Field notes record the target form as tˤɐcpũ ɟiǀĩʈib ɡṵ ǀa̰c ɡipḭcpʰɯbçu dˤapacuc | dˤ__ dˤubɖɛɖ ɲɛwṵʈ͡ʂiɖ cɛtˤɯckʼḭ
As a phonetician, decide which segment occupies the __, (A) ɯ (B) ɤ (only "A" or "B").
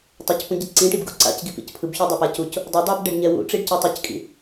B